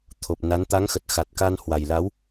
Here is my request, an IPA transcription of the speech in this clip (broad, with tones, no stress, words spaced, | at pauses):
t̪ʰo˨˩p̚na˨˦n t̪a˨˦ŋxə˨˩t̚ xa˨˩t̚ka˧n hwa˨˩jla˨˦w